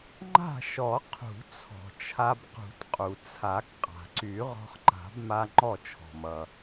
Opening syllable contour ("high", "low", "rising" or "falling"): falling